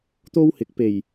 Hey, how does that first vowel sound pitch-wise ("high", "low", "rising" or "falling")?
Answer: high